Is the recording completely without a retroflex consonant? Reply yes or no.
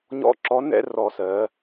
yes